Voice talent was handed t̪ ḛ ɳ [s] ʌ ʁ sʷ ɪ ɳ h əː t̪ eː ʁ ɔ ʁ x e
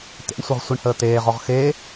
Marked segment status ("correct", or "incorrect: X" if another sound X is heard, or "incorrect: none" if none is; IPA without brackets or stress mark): incorrect: sʷ